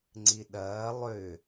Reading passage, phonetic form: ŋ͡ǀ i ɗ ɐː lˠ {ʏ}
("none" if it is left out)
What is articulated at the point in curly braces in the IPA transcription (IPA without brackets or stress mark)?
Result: ʏ